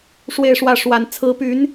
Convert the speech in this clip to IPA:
ʂwe˥˧ɪ̯ʂwä˥˩ ʂwa˧˥n t͡sʰɹ̩˧˥py˧˥n

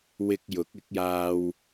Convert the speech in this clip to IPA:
wɪ˧k̚ jʊ˨˥k̚ɪ˨˥k̚jaː˧w

